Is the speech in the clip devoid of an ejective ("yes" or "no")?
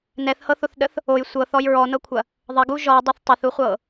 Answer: yes